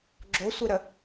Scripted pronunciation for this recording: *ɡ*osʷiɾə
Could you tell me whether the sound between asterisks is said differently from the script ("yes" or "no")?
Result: yes